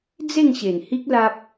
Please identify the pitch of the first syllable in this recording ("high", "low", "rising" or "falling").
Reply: falling